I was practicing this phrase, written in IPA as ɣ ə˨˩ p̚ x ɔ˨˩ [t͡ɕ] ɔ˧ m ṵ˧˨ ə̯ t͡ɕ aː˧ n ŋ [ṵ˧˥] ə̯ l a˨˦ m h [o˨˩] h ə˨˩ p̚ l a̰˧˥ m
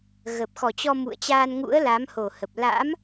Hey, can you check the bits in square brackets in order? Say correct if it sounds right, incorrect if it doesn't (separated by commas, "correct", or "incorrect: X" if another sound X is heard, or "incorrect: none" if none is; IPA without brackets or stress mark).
correct, correct, correct